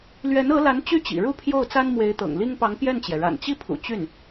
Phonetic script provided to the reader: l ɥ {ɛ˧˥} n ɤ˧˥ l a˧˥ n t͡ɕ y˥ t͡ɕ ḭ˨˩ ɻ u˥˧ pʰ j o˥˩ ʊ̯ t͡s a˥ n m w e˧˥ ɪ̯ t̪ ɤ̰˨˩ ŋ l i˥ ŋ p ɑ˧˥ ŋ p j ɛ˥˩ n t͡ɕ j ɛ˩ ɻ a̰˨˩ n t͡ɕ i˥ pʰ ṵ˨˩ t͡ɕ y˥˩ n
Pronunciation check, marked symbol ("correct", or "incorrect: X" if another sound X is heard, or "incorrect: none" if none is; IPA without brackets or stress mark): correct